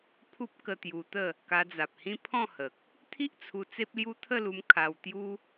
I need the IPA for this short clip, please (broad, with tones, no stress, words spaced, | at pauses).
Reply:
pʰu˦p̚ kə˧t̪ju˧t̪ə˥˧ | ka˧d͡za˨p̚hĩ˦ pʰɔ̃˥˧hə˨k̚ | t̪ʰi˦ʔt͡sʰu˧ t͡se˦p̚lju˦ t̪ʰə˥˧lu˧m kʰa˧wt̪ju˦